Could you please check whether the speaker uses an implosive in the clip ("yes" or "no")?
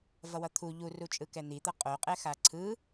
no